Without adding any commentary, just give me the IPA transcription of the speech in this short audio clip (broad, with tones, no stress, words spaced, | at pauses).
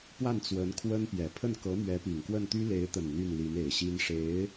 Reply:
pwa˥˩nt͡swə˧˥n kʰwə˥npjɛ˨˩ pʰə˥˩nkɤ˧˥mɥɛ˧˥ pi˨˩ŋkwə˥˩nt̪y˥ le˧˥ɪ̯t̪ə˨˩n n̪y˥˩nli˧˥ne˨˩ɪ̯ɕi˥n ʂe˧˥ɪ̯